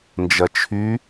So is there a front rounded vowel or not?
yes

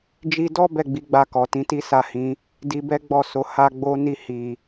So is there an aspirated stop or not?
no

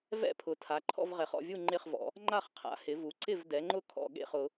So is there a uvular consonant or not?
yes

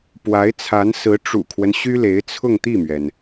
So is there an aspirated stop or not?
yes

